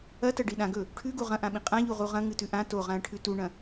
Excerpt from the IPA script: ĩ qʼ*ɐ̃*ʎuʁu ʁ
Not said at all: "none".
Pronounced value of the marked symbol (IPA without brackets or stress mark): ã